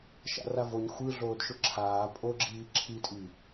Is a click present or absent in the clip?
present